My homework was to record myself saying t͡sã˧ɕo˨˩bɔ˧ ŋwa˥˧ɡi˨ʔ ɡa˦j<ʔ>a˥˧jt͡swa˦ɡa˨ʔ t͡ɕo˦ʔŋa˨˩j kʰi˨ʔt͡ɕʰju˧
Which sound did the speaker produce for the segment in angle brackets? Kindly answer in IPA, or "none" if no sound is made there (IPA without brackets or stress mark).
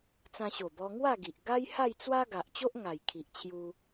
h